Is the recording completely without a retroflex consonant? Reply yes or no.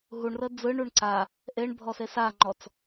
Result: no